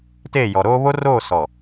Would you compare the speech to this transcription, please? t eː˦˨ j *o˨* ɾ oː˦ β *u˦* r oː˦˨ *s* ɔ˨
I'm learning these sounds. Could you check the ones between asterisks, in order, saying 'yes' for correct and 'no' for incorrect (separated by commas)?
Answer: no, no, yes